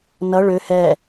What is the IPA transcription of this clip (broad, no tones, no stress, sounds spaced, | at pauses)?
n ʌ ɭ ø h ɛ